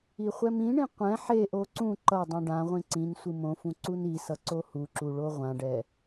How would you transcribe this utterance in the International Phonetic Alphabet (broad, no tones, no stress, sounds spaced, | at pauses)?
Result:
i χʷ ɛ m ĩ ɳ ĩ qʷ ɛ̃ ħ e ʔ o ǀ ũ ǃ ʌ dˤ ũ ɖ ã ʁʷ ĩ ǀ ĩ n sʷ ɯ m õ f ũ ǀ u n i s ʌ ǀ o h u ǁ u ɭ o ʁʷ ã ɖ ɛ